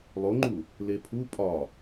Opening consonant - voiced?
yes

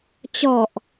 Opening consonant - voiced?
no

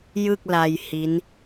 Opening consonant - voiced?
yes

